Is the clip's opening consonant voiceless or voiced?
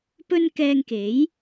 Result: voiceless